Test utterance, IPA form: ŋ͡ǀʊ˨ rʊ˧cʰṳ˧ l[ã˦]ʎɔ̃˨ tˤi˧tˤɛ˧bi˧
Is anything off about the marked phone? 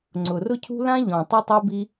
no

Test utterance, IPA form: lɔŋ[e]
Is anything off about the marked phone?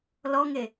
no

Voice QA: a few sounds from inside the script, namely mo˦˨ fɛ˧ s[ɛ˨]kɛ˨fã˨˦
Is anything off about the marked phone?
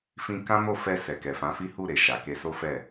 no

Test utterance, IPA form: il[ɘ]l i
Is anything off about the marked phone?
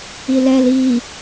yes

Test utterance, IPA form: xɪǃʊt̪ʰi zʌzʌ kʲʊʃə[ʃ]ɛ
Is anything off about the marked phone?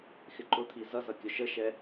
no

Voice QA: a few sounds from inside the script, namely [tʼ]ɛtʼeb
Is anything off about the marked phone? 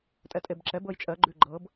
no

